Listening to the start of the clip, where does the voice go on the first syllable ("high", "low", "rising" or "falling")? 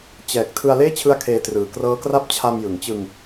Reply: low